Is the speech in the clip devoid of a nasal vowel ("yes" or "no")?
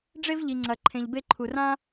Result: no